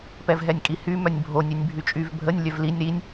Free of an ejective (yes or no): no